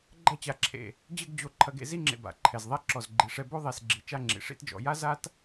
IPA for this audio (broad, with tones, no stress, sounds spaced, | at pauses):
ɡ͡ǃ ɐ˥˧ t͡ɕ a˧ ǁʰ ḛ˧˩ | d͡ʑ ɘ˥˧ ɡ d͡ʑ o˧ ǃʰ ɐ˧ ɡ ḛ˧ z i˥ ŋ͡ǁ ḛ˧ b a̰˩˧ ǃʰ ɛ˧˩ z ðˤ ɛ˥˧ ǁ ɔ˧˩ z ɡ͡ǃ i˩˧ ʂ ɛ˧ b o˥ ðˤ e˧˩ s ɡ͡ǁ i˩˧ t͡ʃ a˥˧ ŋ͡ǁ ḭ˩˧ ʂ ḭ˥ t d͡ʒ ɔ̰˩˧ j a˥ z a˥ t